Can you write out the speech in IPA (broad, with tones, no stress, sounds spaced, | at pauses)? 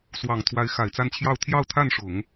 s w ɑ˨˩ ŋ t̪ʰ w a˧˥ ɪ̯ x a˨˩ ɪ̯ t͡s a˥˧ n t͡ɕʰ j ɑ˥˧ ʊ̯ t̪ʰ j ɑ˥˧ ʊ̯ t̪ʰ a˥˩ n ʂ ʊ˨˩˦ ŋ